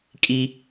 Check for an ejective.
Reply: present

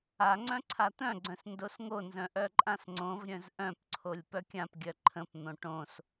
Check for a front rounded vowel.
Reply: present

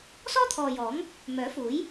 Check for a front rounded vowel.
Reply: present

